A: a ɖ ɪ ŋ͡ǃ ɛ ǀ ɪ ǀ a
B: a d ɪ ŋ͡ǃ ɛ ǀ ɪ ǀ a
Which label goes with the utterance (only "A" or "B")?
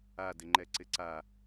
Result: B